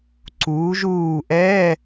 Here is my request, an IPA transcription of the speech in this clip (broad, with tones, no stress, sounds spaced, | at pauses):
ǀ uː˩˧ ʒ uː˧˩ ʔ ɛ˧˥˧